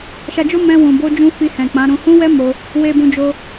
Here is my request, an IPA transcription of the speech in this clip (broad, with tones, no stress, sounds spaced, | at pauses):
ʃ a˧ d͡ʒ o˦ m ɛ̃˧ w ũ˨ b o˧ d͡ʒ ũ˧ f i˧ h ɛ̃˨ k͡p ã˨˦ ɾ ũ˧ h ũ˦ w ɛ˦ m o˧ | w e˧ b ũ˧ d͡ʒ o˧